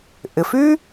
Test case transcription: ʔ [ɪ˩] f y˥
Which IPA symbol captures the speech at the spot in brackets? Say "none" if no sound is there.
ɪ˩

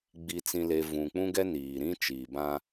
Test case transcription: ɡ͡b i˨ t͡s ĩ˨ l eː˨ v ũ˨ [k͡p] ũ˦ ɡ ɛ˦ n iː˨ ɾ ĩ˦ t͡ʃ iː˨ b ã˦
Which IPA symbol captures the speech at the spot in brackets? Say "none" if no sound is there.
k͡p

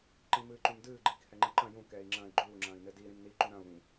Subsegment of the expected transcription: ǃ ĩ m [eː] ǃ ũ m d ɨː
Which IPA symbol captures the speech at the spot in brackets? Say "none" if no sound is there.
ɨː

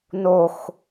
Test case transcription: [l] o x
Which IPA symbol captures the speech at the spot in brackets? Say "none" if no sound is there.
n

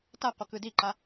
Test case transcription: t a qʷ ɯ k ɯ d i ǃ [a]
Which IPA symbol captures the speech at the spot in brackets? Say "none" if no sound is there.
a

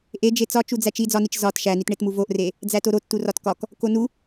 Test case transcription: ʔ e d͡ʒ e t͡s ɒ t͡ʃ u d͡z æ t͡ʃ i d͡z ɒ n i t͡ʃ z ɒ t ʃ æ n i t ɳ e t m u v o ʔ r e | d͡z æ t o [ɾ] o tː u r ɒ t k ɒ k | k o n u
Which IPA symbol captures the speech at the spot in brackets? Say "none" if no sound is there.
ɾ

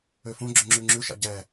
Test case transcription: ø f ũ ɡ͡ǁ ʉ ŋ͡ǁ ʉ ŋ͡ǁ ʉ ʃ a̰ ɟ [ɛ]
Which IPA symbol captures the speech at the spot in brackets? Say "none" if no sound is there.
ɛ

